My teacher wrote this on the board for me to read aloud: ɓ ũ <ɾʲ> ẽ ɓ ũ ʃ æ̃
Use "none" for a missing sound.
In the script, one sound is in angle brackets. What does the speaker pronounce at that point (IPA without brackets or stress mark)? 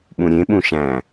ɾʲ